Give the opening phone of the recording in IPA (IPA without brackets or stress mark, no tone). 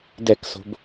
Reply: d